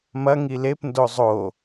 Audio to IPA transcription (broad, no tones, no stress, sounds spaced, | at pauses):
m ɐ ŋ i l e p n d o zˤ o